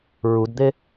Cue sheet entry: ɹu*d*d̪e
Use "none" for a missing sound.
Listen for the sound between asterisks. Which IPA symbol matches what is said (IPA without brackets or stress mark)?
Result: d